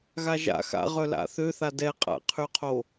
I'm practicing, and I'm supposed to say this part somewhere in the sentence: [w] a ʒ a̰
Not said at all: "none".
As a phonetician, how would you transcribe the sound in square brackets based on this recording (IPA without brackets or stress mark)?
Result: ɣ